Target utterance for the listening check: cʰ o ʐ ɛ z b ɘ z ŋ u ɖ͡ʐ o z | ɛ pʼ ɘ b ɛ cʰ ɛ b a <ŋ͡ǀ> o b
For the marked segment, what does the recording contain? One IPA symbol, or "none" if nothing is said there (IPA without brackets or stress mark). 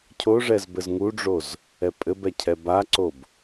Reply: ǀ